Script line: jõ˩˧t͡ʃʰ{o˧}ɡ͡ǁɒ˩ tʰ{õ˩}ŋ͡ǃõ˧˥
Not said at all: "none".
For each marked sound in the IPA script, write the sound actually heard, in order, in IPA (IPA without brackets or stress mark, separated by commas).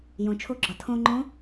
o˧, õ˧